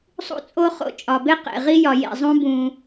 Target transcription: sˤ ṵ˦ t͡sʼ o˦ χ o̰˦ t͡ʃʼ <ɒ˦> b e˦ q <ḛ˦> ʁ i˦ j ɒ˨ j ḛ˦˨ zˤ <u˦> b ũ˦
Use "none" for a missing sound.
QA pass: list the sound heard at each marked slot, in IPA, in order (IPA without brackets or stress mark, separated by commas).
ɒ˨, ḛ˨, ũ˦